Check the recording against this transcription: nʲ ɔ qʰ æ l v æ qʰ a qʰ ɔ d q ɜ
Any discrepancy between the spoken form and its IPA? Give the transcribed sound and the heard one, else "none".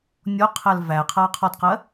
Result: none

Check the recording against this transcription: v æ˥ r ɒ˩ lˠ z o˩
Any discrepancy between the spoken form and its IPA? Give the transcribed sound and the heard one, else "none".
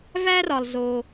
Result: none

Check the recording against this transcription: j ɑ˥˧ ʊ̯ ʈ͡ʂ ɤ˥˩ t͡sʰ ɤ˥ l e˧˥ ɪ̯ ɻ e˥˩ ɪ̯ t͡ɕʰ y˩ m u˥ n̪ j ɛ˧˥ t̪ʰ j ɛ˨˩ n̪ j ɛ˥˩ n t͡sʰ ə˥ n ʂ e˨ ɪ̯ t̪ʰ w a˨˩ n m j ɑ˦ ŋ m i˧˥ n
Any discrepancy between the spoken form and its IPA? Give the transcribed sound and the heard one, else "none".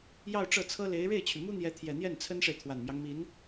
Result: none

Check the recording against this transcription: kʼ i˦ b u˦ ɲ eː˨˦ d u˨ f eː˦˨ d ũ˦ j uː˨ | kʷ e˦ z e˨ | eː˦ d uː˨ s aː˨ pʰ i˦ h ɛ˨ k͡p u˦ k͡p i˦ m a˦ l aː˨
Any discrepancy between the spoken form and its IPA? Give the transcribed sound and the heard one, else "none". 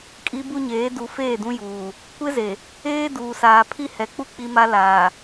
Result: none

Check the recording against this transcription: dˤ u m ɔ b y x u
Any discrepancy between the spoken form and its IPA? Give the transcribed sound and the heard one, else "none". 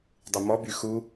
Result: none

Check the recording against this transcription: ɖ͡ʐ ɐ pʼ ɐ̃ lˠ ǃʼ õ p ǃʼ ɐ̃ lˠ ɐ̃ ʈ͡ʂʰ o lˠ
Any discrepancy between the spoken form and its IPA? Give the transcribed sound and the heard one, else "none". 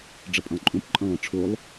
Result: none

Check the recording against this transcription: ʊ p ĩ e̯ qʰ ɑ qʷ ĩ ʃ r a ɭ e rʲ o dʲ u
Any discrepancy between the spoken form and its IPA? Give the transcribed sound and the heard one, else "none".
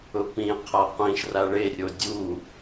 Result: ɑ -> a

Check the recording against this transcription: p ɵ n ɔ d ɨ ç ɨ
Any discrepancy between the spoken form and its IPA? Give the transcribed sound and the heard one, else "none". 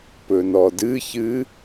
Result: none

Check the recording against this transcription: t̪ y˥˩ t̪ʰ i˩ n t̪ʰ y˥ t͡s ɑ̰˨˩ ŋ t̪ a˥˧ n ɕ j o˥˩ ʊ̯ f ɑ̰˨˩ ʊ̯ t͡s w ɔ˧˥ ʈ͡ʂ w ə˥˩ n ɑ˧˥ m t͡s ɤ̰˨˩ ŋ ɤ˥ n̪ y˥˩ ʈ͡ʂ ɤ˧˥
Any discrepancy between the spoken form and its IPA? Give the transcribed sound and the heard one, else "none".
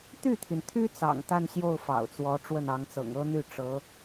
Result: m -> ŋ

